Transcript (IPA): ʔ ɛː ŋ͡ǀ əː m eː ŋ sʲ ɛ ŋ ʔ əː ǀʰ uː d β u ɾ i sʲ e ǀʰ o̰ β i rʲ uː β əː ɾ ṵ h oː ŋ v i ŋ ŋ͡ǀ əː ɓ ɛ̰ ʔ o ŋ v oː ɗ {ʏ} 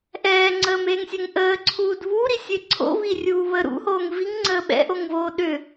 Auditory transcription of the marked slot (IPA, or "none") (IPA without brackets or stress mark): ʏ